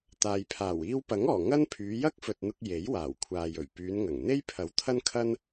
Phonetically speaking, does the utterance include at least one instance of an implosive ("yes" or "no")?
no